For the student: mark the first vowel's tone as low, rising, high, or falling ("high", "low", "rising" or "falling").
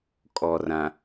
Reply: low